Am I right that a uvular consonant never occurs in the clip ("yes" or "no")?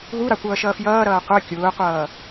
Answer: no